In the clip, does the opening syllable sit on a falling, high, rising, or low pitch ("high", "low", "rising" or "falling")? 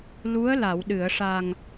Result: rising